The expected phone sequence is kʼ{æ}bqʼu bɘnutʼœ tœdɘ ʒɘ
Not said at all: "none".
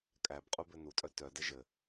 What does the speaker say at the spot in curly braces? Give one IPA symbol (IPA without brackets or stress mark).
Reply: æ